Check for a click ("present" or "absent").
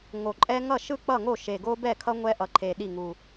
present